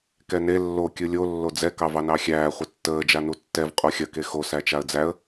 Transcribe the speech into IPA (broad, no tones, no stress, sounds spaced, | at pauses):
k ɛ n e lː o kʲ ɯ lʲ o lː o d͡z ɛ k ɑ v ɑ n ɑ xʲ æː χʷ ɐ tː əː d͡ʒ a n u tː ɛ v qʼ o xʲ ɐ k e x o s æ t͡ʃ a ə̯ d͡z æ ə̯